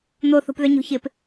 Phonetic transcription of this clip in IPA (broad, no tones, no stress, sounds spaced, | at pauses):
n̪ o θ o̤ p ð œ ɲ o̤ ç ɪ p